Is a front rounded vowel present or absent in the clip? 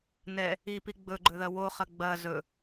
absent